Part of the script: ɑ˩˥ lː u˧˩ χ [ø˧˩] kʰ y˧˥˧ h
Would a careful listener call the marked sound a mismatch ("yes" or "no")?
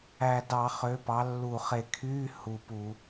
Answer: yes